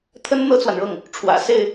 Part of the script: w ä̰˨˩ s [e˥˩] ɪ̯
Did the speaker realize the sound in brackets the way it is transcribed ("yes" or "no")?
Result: yes